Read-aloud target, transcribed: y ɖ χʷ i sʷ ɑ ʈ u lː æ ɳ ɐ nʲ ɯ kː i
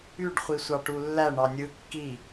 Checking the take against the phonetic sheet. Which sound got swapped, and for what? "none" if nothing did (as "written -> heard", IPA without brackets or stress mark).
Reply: ɐ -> ɑ